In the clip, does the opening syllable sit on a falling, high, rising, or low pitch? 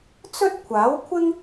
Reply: high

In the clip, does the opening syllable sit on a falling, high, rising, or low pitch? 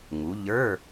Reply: rising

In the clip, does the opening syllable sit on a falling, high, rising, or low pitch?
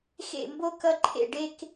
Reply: falling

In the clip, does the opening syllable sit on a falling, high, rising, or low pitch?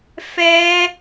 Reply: high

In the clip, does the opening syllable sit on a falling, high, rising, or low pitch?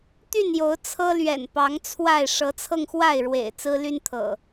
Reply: falling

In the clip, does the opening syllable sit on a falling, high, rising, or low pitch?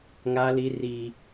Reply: high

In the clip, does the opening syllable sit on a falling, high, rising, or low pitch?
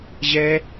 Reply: high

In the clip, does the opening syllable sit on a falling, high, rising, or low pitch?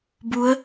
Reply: rising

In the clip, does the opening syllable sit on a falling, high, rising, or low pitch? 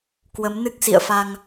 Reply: rising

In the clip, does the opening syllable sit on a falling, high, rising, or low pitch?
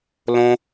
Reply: high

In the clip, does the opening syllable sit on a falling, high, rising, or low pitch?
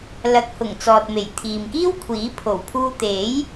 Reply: rising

